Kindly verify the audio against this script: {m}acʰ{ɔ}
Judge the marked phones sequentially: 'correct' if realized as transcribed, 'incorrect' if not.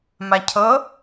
correct, incorrect

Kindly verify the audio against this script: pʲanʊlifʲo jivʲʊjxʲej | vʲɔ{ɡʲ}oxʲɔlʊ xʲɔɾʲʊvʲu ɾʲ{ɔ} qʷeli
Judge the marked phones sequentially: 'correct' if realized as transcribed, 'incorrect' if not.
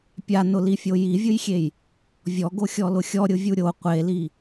incorrect, incorrect

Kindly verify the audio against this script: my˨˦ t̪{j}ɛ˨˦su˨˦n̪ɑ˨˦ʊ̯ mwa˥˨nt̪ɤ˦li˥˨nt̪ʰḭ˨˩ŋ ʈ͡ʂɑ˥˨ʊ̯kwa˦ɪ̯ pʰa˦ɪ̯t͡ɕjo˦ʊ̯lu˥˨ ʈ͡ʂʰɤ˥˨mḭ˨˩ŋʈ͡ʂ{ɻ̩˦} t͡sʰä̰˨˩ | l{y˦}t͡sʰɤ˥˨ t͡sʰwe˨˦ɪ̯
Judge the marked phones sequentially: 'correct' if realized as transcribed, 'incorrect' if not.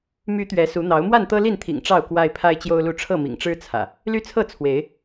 incorrect, correct, correct

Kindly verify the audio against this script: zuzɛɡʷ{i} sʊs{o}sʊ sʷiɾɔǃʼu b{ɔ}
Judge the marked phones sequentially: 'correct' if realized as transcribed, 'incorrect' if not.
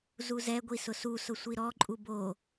correct, incorrect, incorrect

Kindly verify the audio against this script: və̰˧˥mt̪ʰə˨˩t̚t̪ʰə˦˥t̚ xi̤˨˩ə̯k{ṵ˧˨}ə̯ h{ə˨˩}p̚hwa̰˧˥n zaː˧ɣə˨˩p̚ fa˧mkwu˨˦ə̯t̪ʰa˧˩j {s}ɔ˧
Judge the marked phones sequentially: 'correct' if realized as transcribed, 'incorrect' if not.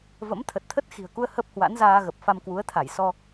incorrect, incorrect, correct

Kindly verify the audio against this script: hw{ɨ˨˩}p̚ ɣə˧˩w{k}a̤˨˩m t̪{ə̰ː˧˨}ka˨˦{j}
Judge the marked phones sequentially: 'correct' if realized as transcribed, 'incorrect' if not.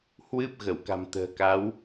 incorrect, correct, incorrect, incorrect

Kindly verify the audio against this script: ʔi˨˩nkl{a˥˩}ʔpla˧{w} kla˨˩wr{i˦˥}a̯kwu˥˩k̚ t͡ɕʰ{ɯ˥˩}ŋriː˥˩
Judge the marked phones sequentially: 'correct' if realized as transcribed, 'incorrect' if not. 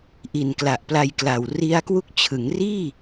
incorrect, incorrect, correct, incorrect

